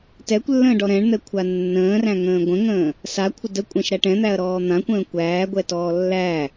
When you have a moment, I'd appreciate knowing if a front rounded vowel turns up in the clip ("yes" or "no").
no